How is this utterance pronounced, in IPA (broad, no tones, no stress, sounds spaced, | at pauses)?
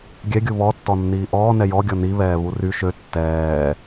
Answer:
ɡʲ ɛ ɡʲ u β ɔ tː ɔ nː iː ʔ ɔː n ɛ j ɔ ɡʲ ɔ n i β ɛː β u r y ʃ ø tː ɛː